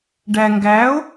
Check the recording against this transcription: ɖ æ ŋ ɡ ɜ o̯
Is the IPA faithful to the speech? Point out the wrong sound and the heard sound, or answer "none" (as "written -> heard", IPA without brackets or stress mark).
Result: ɜ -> æ